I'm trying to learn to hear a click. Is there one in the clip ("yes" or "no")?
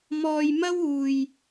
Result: no